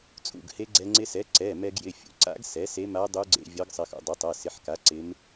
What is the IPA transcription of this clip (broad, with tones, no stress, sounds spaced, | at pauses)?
t͡sʼ ṵ˩˧˩ ɡ h e˧˥ ɡ͡ǀ ɛ˧ ŋ͡ǀ ɪ˧ s ɛ˩˥ ǀ ɛ˩˧˩ m ɛ˧ ɡ j ɪ˩˧˩ fʲ ṵ˩˥ ǀ a̰˧˥ ɡ s ɛ˩˥ s e˧˥ m a˧˥ dˤ u˧˥ ɡ͡ǀ ḛ˧ vʲ ɒ˧˥ ɡ sˤ ɪ˧ x ṵ˧ dˤ ɪ˩˥ tˤ ɐ˩˧˩ s ɪ˩˧˩ ħ k a˩˥ ǀ ɪ˧˥ m